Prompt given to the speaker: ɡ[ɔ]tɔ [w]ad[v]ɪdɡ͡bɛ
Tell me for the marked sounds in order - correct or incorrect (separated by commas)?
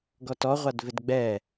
correct, incorrect, correct